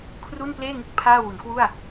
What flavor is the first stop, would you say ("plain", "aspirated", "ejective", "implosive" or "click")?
aspirated